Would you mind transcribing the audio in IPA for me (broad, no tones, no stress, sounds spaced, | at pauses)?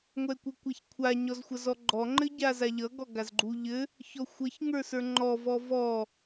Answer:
ŋʷ ɛ kʷ ɘ kʷ a ç kʷʰ a ɲ ɔ z xʷ ʌ z ɔ ɡ͡ǃ ɔ ŋ͡ǃ ɘ ɟ a z a ʎ ʌ ɡ ɔ ɡ a z ɡ͡ǃ u ʎ ɘ | ç ɔ xʷ ʌ ç ŋ ə˞ s ə˞ ŋ͡ǃ ɔ v ɔ v ɔ